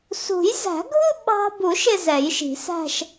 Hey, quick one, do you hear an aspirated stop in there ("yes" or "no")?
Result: no